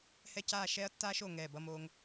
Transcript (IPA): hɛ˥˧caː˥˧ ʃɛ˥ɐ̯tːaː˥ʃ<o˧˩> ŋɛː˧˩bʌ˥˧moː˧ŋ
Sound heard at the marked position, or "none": o˧˩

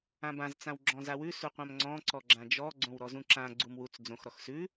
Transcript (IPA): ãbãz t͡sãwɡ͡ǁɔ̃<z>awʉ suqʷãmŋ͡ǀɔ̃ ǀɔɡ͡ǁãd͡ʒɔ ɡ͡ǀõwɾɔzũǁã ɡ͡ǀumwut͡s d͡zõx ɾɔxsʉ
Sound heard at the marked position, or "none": z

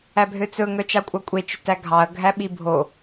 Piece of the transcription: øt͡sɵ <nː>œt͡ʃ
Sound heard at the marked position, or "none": ŋ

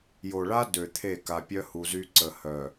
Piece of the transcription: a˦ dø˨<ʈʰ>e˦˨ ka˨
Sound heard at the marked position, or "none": t̪ʰ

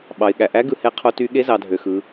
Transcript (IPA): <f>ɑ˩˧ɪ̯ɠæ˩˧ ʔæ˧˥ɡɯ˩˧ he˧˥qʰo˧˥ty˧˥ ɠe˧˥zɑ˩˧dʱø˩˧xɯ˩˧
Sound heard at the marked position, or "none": ɓ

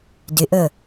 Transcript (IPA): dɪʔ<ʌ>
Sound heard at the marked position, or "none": ə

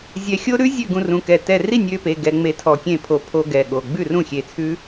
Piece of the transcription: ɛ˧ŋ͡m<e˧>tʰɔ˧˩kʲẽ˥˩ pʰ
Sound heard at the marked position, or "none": e˧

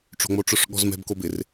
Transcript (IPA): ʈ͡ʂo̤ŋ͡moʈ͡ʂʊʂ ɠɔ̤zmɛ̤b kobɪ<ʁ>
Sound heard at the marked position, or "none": r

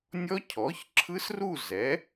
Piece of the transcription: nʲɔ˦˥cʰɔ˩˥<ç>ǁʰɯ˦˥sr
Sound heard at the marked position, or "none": ç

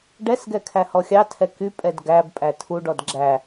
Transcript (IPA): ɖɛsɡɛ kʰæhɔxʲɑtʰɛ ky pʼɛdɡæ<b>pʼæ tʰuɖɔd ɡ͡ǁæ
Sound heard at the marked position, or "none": b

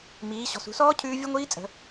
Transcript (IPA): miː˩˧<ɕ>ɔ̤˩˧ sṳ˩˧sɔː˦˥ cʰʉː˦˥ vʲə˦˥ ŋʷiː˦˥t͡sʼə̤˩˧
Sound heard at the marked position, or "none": ɕ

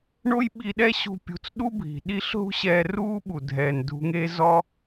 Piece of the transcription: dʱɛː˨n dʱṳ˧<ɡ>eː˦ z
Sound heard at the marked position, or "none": ŋ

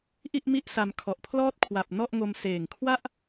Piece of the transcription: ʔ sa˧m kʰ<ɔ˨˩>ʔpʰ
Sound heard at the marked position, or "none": ɔ˨˩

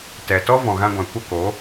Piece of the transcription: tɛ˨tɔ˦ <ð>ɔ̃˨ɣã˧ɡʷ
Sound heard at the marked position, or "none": v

